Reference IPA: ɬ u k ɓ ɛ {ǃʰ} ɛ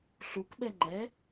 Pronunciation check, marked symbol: incorrect: ŋ͡ǃ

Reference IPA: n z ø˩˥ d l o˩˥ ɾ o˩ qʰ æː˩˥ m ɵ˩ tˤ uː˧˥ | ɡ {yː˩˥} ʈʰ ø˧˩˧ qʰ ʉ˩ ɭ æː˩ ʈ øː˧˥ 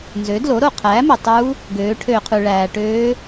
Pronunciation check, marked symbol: incorrect: øː˩˥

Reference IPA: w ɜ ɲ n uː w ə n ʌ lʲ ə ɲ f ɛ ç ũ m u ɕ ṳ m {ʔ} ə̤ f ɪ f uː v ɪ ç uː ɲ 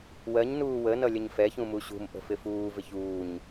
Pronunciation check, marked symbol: correct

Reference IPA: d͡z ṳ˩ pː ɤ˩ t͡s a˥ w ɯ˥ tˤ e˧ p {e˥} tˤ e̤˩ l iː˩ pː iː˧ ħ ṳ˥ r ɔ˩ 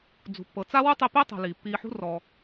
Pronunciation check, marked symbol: correct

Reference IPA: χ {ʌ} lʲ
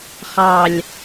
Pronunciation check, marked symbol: incorrect: ɑ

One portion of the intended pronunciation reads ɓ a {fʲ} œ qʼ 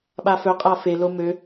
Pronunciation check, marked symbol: incorrect: f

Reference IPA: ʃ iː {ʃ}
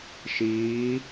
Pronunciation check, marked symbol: incorrect: none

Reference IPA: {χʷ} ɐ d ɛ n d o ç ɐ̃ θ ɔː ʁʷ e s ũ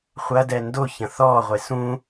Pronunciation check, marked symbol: correct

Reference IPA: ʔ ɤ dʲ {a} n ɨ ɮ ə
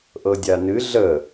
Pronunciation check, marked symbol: correct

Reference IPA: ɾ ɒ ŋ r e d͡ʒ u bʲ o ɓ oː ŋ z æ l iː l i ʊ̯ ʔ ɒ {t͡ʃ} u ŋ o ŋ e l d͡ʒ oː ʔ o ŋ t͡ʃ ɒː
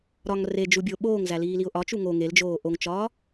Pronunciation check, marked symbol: correct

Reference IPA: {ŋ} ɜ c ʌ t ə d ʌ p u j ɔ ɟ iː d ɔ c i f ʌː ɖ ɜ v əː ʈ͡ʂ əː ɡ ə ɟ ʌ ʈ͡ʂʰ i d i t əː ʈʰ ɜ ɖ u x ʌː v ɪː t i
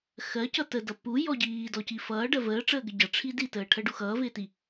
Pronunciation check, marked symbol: incorrect: x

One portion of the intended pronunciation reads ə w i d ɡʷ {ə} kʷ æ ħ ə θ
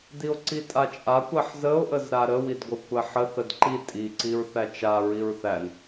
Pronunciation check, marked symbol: correct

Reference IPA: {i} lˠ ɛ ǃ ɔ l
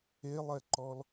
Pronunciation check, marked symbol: incorrect: e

